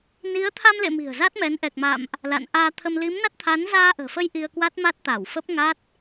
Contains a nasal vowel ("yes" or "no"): no